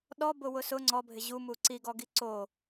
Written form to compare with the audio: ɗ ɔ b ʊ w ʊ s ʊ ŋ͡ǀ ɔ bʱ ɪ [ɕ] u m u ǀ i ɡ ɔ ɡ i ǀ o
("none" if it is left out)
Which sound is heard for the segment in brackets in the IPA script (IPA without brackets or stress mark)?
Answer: ʑ